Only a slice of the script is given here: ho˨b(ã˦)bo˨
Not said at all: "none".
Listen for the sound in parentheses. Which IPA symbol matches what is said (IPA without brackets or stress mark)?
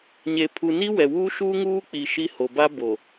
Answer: a˦